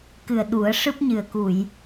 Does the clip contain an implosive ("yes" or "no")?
yes